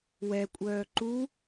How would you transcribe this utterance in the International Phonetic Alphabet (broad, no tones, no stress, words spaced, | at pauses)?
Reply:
wɛkʷʼœː ǃu